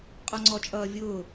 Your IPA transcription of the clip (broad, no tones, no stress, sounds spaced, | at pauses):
qʼ ɔ ŋ͡ǀ ɔ t͡ʃʼ ʌː vʲ ʊː